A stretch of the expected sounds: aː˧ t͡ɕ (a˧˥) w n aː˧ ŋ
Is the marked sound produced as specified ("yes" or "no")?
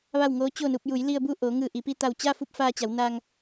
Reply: no